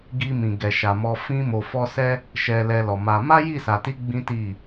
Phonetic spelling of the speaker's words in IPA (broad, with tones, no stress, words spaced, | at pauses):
ɡi˧mĩ˨ ɡɛ˨ʃa˨mɔ˧ fĩ˧mo˨fɔ˧ sɛ˦ | ʃɛ˧lɛ˧lɔ˨ ma˧ ma˦ji˦˨sa˨ti˨˦ ɡ͡bĩ˦ti˦˨